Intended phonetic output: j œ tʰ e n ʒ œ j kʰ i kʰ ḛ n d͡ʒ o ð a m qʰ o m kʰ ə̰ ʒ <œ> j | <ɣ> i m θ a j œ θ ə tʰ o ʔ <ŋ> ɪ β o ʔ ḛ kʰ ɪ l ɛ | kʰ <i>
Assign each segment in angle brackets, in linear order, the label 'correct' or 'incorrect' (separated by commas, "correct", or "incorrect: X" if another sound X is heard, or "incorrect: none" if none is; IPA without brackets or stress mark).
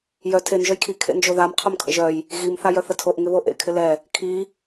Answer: correct, correct, correct, correct